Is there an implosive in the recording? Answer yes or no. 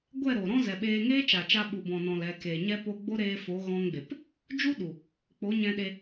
yes